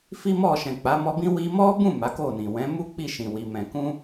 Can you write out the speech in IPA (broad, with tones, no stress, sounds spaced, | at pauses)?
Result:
f i˦ m ɔ˦˨ ʃ ɛ̃˨ k͡p a˨˦ m ɔ˧ b ĩ˦ w i˧ m ɔ˦ b ũ˦˨ m a˨˦ k o˦˨ n ĩ˨ w ɛ̃˨˦ m u˦ k͡p i˦˨ ʃ ĩ˨ w i˨ m ɛ̃˨ k ũ˧